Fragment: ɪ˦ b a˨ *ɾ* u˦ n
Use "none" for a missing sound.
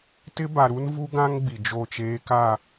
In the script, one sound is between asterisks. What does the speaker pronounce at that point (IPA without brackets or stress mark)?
ɾ